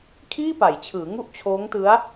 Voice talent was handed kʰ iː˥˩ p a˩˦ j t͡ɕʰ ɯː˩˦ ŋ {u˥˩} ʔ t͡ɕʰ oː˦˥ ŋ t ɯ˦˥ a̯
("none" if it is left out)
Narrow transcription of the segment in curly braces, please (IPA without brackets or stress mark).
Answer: u˥˩